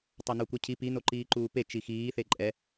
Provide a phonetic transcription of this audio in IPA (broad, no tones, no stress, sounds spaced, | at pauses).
tˤ a n o kʷ e cʰ i p i n o ǃ iː ǃ uː p e t͡ʃ i x iː θ e ǃʼ ɛ